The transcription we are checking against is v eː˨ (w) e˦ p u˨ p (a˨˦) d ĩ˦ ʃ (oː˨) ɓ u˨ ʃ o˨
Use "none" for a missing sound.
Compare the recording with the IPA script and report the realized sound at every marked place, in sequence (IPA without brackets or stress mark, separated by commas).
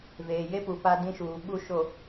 j, a˦, uː˨